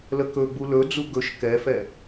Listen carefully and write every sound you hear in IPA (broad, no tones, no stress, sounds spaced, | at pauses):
l ə k ɵ ɡ͡b u l ɵ d͡z u ɡ ɵ ʃ k ɛ f ɛ